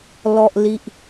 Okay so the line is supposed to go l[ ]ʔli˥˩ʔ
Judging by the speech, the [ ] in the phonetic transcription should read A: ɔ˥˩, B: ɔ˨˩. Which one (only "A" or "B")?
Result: A